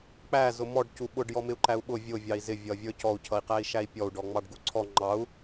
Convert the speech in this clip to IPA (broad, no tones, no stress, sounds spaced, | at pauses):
k͡p æ z ʊ m ɔ ɖ c u ɓ ʊ ɖ j ɔ m ɪ u̯ ǃ æ u̯ ɓ ʊ vʲ ʊ vʲ ɑ i̯ z ɪ vʲ ʌ vʲ ə˞ c ɔ u̯ cʰ ʌ i̯ q æ i̯ ʃ æ i̯ pʲ ɔ u̯ ɖ ɔ ŋ͡m ɑ ɖ ɡ u ǀʰ ɔ ŋ͡ǃ ɑ u̯